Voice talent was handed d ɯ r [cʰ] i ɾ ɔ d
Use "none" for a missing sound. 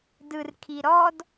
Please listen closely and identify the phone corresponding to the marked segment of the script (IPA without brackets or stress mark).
kʰ